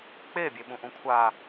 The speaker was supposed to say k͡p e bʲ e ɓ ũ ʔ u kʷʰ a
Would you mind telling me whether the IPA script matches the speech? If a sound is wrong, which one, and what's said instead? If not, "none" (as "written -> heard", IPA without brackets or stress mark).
u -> ũ